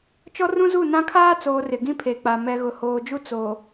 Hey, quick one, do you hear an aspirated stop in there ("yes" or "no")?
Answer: yes